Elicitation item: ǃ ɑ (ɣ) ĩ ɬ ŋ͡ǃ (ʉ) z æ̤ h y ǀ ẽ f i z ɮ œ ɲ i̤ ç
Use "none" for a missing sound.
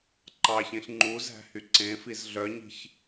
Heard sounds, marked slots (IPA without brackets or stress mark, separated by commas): ç, u